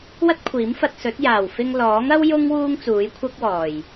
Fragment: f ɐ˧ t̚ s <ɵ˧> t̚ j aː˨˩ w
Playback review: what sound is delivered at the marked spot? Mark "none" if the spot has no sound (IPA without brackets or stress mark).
ɵ˨˥